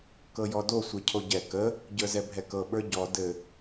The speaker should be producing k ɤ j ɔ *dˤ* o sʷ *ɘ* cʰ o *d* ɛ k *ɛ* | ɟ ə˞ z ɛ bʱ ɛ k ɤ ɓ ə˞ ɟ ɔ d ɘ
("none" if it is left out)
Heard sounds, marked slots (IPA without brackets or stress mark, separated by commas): d, e, ɟ, ə